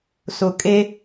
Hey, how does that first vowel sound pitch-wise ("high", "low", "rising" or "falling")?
low